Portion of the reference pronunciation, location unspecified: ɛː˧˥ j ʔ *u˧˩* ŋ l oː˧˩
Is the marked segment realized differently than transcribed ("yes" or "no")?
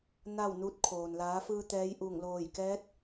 no